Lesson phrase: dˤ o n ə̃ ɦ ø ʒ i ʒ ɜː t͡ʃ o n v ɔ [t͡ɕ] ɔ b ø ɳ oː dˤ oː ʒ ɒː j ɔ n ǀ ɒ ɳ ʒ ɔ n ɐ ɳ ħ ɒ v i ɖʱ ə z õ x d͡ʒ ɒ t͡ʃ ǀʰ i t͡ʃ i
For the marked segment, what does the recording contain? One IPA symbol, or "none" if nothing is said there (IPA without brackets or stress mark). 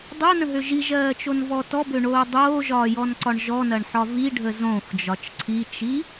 t